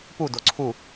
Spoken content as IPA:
p u d o ǀʰ u

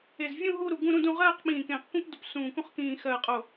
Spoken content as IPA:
e˧˩ z vʲ ũ˥˧ ɦ u˥˧ ɾ u˧˩ ɡ ũ˥˧ ɾ ũ˥˧ d ũ˥˧ ʁ ɜː˥˧ q ɓ ĩː˧˩ k ẽː˧˩ q kʷ ĩ˥˧ p d u˧˩ p s ũː˧˩ k ũ˥˧ χ k ĩː˥˧ x ɜ˥˧ qʼ o˥˧

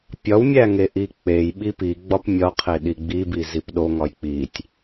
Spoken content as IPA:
pʲ ɒ w mʲ æ ŋ e ʔ i k͡p e j ɓ i p i ɡ͡b ɒ p mʲ ɒ qʰ e ɗ i ɡ͡b i b i z i p ɗ o ŋ ɒ j k͡p i tʲ

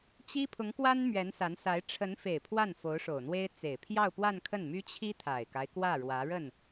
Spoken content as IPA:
t͡ɕ i˥ pʰ ʊ˧˥ ŋ k w a˥ n m ɥ ɛ˧˥ n s a˧˥ n s a˧˥ ɪ̯ ʈ͡ʂʰ ə˧˥ n f e˨˩ ɪ̯ pʰ w a˥˩ n f o˧˥ ʊ̯ ʂ o˨˩ ʊ̯ n̪ w e˥ ɪ̯ t͡s e˨˩ ɪ̯ pʰ j ɑ˥˧ ʊ̯ p w a˥˧ n kʰ ə˥˩ n m y˥ t͡ɕʰ i˥ t̪ʰ a˨˩ ɪ̯ k a˦ ɪ̯ k w ä˥˩ ɻ w ä˧˥ ɻ ə˥˩ n

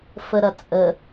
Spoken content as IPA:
f ə ɾ ɐ t͡sʼ ə

